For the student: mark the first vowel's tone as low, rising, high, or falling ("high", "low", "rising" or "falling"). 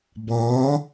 rising